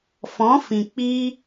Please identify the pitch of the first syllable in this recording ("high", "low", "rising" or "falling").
rising